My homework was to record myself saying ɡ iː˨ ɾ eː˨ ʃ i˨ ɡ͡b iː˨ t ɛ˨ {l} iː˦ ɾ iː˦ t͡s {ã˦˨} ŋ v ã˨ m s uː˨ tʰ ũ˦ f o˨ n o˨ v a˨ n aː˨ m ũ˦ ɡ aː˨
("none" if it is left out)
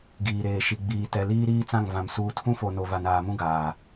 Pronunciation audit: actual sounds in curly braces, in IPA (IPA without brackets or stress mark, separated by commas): l, ã˦˨